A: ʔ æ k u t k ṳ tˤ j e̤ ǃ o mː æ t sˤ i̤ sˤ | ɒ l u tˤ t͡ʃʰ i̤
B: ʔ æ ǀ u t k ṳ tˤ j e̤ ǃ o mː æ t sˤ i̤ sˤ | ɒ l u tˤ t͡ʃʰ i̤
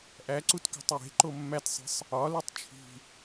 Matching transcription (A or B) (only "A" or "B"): B